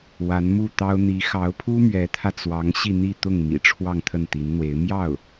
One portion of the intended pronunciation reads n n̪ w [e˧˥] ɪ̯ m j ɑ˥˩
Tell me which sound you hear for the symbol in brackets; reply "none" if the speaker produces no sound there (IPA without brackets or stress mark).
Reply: e˧˥